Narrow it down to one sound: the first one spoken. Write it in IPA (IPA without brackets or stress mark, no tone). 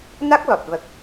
n